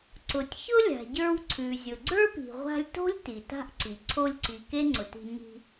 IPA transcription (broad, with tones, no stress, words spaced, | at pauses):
ǀʊ˩tʲ çʊ˥lʲa̤˩ɟə˞˧w ǀʰʉ˩zʲʊ˩ ɡ͡ǀə˞˥pi̤˩ʁʷa̤˧lʲto̤˥lʲ ti˩ta̤˥ʔǀi˩ ǀʰo˧lʲǀi˩ ke˥ŋ͡ǀʊ˩ti̤˧ ɲi̤˧